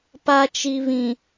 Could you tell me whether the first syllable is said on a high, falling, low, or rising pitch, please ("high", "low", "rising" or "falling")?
low